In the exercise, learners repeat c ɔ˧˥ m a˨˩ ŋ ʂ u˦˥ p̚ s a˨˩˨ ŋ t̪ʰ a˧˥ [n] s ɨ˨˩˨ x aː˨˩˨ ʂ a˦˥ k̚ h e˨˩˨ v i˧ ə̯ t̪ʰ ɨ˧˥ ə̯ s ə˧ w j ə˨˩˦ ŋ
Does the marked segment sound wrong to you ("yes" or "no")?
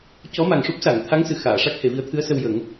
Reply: yes